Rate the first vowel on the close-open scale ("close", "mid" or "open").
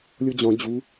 mid